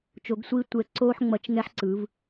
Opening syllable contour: rising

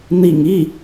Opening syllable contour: low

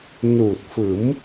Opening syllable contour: low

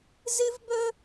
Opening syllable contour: high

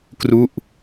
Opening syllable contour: falling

